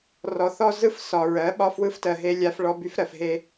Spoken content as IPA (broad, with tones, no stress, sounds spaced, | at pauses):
r ɔ˨ θ ɔ˦ z ɯ˦ f s ɒ˨ ɹ ɜ˨˦ ɓ ɒ˦ f w ɯ˦ f t ɜ˨ ɦ e˦ lʲ a˦ f ɭ ɔ˦ b y˦ f ɾ ɜ˨ f ɦ e˦